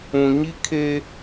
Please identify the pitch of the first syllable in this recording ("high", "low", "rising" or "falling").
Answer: low